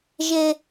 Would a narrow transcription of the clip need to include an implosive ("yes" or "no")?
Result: no